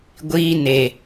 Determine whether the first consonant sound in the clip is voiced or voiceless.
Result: voiced